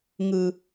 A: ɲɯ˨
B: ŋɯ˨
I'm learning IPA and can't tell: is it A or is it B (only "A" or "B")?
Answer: B